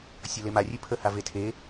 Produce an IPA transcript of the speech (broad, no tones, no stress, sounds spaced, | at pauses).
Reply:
sʲ ʌ l e m a rʲ ʉ pʰ ə h a v e tʰ e